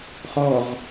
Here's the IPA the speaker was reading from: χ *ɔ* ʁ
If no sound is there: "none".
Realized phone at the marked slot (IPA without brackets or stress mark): ɔ